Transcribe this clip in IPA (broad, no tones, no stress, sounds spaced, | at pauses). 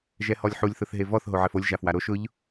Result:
ʒ ɛ h ɔ lʲ ħ u lʲ θ ʊ θ ɦ e v ɔ θ ɦ o ʕ ɛ f o lʲ ʒ a f w a ɾ o ʃ ʊ ʎ